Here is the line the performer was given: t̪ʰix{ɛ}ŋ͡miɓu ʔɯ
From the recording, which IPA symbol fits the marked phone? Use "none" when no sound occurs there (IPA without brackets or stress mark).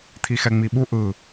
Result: ɛ